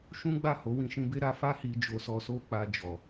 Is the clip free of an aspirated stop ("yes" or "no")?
yes